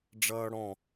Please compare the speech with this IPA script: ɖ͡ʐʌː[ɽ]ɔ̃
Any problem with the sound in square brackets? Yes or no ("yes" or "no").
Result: no